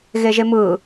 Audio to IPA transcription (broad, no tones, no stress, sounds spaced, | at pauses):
ɣ e ʒ e m ɯ